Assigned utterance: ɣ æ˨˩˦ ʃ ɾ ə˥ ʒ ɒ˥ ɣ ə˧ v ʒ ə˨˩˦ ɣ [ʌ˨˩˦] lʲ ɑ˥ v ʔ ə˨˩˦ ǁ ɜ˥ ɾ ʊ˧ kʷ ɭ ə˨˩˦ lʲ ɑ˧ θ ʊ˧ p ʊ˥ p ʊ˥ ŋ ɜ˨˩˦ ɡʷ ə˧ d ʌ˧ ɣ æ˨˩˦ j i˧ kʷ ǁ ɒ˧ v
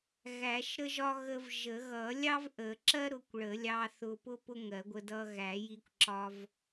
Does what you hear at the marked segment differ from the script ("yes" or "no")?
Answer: no